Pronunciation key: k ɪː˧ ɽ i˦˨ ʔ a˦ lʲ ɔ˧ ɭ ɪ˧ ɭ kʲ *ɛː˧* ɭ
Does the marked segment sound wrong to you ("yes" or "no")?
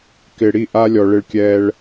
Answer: no